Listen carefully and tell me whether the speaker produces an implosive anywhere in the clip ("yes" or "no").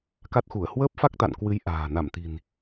no